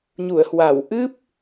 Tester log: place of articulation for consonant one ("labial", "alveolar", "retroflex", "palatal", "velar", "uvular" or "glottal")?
palatal